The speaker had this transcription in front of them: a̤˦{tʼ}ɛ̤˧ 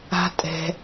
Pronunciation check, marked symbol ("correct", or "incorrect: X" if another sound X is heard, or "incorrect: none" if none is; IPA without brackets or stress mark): correct